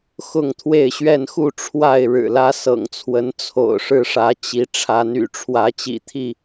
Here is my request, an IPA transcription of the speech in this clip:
xʊ˥˨ŋt̪ʰwe˥˨ɪ̯ɕɥɛ˥˨nxu˥˨ ʈ͡ʂʰwa˥˨ɪ̯ ɻɻ̩˨˩lä˦sɤ̰˨˩ŋt͡sʰwə˨˦n t͡sʰo̰˨˩ʊ̯ʂɻ̩˥˨ʂä˨˦t͡ɕi˨˦ ʈ͡ʂʰa˨˦ny̰˨˩ʈ͡ʂʰwä˨˦ t͡ɕḭ˨˩t̪ʰi˥˨

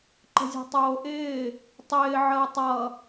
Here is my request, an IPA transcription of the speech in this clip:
ǃə̤zʲɔ̤tˤoːʔɪː | tˤɪː ʕəːtˤʌ

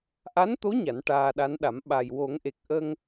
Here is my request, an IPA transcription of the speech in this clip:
ʔa˧˥nt̪o˧˥ ɲa˨˩˦nʈaː˧ɗa˧˥nɗa˨˩˦m ɓa˨˩jwo˨˩˦ŋʔe˨˩k̚ʔə˧ŋ

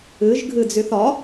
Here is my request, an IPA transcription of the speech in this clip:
ɨʒ ɡʱɨd͡zyθɒ

